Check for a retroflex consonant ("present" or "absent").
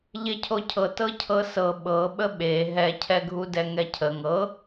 absent